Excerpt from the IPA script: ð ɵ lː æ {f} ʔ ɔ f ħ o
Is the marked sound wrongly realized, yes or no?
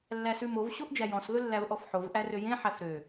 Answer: yes